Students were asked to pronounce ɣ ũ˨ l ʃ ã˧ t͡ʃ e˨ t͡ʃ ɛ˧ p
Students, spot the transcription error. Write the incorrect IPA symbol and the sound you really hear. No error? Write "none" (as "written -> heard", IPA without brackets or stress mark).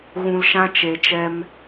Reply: p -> m